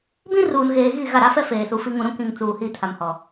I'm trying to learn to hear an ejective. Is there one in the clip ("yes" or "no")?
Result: no